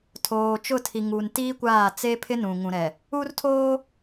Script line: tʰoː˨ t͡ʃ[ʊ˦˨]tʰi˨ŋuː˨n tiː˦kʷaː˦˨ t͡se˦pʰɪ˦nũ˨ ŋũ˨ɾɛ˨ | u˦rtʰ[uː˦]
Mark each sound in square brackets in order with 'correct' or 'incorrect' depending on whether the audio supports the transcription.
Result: correct, incorrect

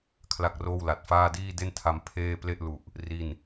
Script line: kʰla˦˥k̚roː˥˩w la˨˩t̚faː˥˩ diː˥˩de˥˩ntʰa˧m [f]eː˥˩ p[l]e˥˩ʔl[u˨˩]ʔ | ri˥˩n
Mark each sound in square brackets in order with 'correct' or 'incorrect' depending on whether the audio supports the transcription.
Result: incorrect, correct, correct

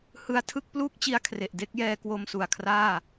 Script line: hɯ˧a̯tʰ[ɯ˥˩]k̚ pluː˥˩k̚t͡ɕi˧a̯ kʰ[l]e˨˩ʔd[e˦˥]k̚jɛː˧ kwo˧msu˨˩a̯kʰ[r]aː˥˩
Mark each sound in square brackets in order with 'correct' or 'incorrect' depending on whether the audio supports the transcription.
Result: correct, incorrect, correct, correct

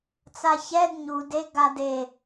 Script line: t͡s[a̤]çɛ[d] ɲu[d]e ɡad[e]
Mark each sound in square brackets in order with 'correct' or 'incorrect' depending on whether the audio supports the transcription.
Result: incorrect, correct, correct, correct

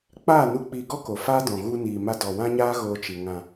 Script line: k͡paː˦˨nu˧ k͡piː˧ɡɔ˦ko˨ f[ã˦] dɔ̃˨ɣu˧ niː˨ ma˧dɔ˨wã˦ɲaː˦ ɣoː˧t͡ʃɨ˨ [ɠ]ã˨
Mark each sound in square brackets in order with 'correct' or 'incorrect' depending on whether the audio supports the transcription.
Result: incorrect, incorrect

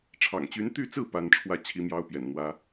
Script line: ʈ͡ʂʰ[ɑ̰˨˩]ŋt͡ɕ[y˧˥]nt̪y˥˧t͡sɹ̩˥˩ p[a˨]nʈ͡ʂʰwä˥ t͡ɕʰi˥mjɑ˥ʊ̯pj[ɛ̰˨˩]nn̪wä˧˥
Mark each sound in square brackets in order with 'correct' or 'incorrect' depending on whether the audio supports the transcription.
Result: correct, correct, incorrect, correct

